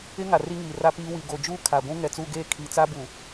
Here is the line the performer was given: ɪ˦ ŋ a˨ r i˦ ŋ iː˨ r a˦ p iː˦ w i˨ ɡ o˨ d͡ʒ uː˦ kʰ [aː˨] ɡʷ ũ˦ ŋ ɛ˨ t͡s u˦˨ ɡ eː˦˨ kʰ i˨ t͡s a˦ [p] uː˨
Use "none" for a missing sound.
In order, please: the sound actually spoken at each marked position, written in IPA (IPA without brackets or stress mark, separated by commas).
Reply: a˨, b